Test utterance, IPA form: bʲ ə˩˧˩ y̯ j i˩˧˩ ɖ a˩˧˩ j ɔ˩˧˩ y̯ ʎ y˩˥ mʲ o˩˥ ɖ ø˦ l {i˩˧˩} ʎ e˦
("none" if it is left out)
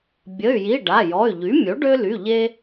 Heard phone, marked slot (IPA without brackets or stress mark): y˩˧˩